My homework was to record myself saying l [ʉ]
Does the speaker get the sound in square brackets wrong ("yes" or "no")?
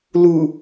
yes